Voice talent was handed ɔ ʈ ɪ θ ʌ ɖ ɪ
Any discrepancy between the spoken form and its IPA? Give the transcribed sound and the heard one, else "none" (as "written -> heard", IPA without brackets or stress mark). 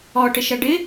θ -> ʃ